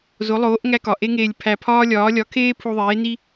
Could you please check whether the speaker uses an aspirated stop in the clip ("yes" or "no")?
yes